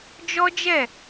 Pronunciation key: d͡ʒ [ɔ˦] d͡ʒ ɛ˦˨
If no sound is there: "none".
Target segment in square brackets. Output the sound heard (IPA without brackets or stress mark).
ɔ˦